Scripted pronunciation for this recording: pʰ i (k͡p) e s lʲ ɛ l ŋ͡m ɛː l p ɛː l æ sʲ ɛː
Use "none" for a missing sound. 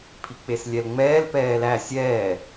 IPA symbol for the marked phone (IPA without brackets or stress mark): k͡p